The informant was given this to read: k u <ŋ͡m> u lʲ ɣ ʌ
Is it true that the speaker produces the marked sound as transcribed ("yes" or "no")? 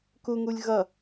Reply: no